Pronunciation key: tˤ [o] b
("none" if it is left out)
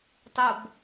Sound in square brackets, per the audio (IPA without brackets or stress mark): o